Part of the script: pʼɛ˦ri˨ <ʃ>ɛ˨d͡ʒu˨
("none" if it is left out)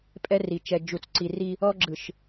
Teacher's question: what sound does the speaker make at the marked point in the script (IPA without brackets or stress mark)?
t͡ʃ